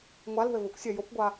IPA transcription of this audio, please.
ŋʷal ðevɯkʷsʲɛ jokʷɡʷa

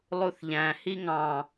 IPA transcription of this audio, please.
lˠuθʎæ̃ hiŋɑ̃

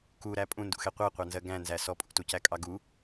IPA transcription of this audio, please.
kuɾæ pʼũndṵxɛ qʷɜqʷɑnzɜ ɡæ̃nzæsɔ pʼṵtucækʼɑ ɡu

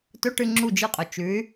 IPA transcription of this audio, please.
tɵ˧˥˧ʈɨ˧ ŋ͡ǁu˥˧d͡ʒɨ˥˧qʼɵ˧ t͡ʃʉ˧˥y̯

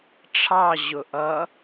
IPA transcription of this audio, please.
ʈ͡ʂʰɑ ʑʊʔʌ

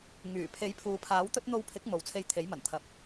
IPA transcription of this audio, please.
ŋyː˨˩ pʰe˨˥jpʰuː˨˧pʰaː˨˥wt̪ɵ˥t̚ n̪o˧wpʰɪ˨˥k̚ mo˨˧w t͡sʰe˧jt̪ʰe˨˥jmɐ˨˩n t̪ʰɐ˨p̚

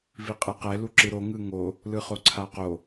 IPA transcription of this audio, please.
viqʼiqɛ luǁɯɾo ŋɯŋo | lɯχoǀʰaqo

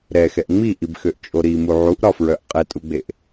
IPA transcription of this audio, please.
ɾɛxɛʔ ŋ͡miʔibxøʔt͡ʃʼo ɾimu ʕuʔɾɒfɹœʔ qʼɛtʼuɡ͡beʔ

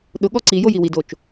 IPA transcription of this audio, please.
ɗʊɠɔ ǀijoj iwidot͡ʃ

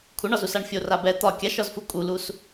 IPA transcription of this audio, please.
kʰuɳɒzusaɳ fʲorabɛ t̪ɒ kʲaʃɒzfu kʼulus

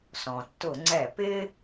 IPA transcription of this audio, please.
sɔ̃˩tːʊ˧˩˧ ŋ͡ǀɛ˧˩˧pɪ˥

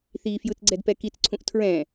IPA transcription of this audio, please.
θiːfjɯt͡sɡ͡ǀɛd pɛkit͡sǀʰũʔ tʰɹɛ̃

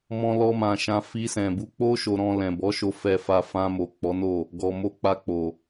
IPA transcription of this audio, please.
mɔ̃˧ lɔ˧mã˨ʃã˧ fi˧sɛ̃˨ bu˨˦k͡po˦ ʃo˧ɾɔ̃˧ lɛ̃˨bɔ˨˦ʃo˧ fɛ˧fa˧ fã˧mo˨ k͡pɔ˨˦no˦˨ | ɡɔ˨mo˧k͡pa˧k͡po˨

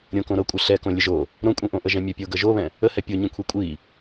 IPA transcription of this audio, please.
ɾʲõkõɾɤkʷʼə ɬɛkõ lʲəʒo | ɾõkʷʼĩʔõʔə ʒɛ̃mʲə pʲoɡəʒoβɛ̃ | ə hɛpʲo ɲĩkʷʰikʷʼi

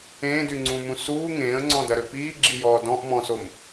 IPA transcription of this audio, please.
ẽːdyŋ͡ǀũmũ suː ŋẽːə̯ŋ͡ǀɔ̃dɐɾø piːɡ͡ǁijɔː dɔ̃ʔ mɔ̃som

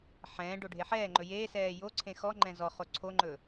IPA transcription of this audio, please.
ħɛ̃ː ɖoɖʱeħɛːŋ͡ǃɵ jeːsɛː joǀʰẽ xɔ ŋ͡ǃɛ̃zɔχo ǀʰoŋ͡ǃɵ

